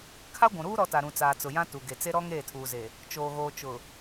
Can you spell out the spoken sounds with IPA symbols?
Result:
kʰ a˦ ɡʷ ũ˨ ɾ uː˦ ɾ ɔ˦ t a˨ ɾ ũ˨ t͡s aː˨ t͡s ʊ˨ j ã˦ t u˨ ɡ e˨ t͡s e˦ ɾ ɔ˦ ŋ eː˦˨ tʰ uː˨ z e˨ | t͡ʃ oː˨ ɣ oː˨ t͡ʃ ʊ˨

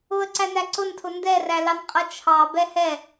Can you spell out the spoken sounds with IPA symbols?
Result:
ʊ ə̯ ǀ æ n æ ǀ ʊ n tʰ ʊ n d ɛ r æ l ɑ n qʼ ʌ t͡ʃʰ ɑ b ɛ h ɛ

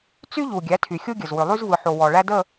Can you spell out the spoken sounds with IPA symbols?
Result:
t͡s y˦ ʎ u˨ ɡʲ æ˨˦ tʰ y˨ xʲ u˦ ɡʲ ə˨ z w ʏ˨ lˠ y˦ z v ɯ˨ ħ o˨ w ɔ˨ ɭ æ˦ d ə˦˨

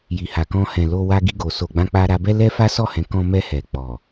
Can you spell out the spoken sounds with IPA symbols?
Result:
j i˨ h a˨ k ɔ̃˧ h ɛ̃˨ l o˧ w a˧ ɡ i˧ ɡ o˨ s o˨ ɡ͡b ã˧ k͡p a˧ ɾ a˧ b ɛ˦ l ɛ˦ f a˦ s ɔ˦˨ h ɛ̃˨˦ k ɔ̃˧ m ɛ˧ h ɛ˨ k͡p ɔ˨

